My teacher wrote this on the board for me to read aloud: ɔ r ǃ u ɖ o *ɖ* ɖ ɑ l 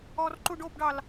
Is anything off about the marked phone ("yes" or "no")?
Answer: yes